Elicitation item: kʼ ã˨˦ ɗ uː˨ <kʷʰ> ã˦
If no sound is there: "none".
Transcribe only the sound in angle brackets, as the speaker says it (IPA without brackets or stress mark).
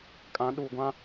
ɡʷ